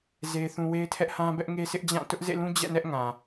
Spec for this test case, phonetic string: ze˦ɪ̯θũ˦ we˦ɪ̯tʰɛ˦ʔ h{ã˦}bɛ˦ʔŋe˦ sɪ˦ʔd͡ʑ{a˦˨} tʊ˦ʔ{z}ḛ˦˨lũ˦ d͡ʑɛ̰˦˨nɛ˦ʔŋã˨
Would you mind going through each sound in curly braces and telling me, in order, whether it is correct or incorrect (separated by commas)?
correct, incorrect, correct